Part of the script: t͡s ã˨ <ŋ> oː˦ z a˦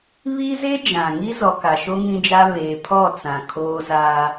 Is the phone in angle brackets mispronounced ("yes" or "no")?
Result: yes